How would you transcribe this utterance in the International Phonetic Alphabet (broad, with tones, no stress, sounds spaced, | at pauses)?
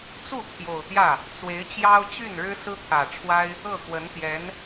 t͡s u˥˩ t̪ʰ j o˨˩ ʊ̯ t̪ j ä˥˩ | t͡s w e˧˥ ɪ̯ t͡ɕ j ɑ˥ ʊ̯ t͡ɕ y˥˩ n ɻ ɻ̩˥ s ɹ̩˥ t̪ʰ ä˨˩ ʈ͡ʂʰ w a˥ ɪ̯ | ɤ˥˩ k w ə˧˥ n t̪ j ɛ˧˥ n